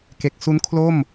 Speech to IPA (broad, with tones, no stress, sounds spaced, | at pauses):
k e˦˥ k̚ s u˦˥ n kʰ l o˥˩ m